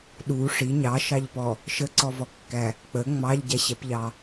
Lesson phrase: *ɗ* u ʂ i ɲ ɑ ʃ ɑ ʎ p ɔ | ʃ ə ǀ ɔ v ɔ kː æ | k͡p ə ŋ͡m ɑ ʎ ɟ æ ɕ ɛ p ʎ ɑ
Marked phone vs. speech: correct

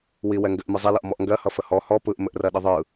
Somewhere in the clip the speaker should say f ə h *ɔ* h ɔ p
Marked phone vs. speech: correct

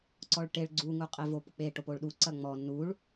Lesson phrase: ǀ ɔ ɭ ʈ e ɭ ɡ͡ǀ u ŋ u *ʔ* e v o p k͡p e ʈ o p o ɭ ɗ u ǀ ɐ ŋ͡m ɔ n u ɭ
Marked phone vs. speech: incorrect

